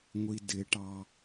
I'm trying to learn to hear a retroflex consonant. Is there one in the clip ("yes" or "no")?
yes